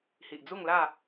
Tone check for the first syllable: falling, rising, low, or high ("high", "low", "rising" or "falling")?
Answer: low